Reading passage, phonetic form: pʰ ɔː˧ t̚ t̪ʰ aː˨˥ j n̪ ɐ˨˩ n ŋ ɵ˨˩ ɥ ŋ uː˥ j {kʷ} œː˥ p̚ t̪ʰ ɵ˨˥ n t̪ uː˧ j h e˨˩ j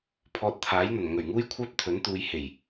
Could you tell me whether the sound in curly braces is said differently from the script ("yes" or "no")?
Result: yes